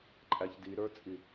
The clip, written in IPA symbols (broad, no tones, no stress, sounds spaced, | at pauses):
ǃʼ æ ç d i ɾ ə˞ t͡sʼ i